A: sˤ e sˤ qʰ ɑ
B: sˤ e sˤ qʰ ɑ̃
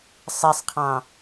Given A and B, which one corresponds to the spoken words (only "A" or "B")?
B